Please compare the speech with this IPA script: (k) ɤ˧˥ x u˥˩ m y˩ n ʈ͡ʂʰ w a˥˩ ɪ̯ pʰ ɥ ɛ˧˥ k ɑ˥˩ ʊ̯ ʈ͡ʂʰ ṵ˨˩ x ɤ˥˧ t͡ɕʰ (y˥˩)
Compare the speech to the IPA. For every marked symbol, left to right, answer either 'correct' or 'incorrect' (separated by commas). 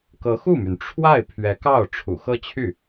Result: correct, correct